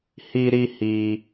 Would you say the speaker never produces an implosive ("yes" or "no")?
yes